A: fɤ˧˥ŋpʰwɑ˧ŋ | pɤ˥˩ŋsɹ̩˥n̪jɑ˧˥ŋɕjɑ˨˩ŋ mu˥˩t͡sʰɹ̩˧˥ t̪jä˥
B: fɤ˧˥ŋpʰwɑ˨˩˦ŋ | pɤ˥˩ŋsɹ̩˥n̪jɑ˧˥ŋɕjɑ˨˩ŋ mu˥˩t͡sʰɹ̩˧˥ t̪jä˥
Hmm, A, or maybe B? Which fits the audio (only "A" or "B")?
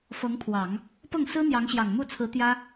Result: B